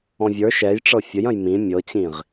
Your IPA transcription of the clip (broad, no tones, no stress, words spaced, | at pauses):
ɔ̃vʲə˞ ʃɛjʈ͡ʂɤ fʲəjɐ̃j mĩ mʲɤt͡ɕĩʁ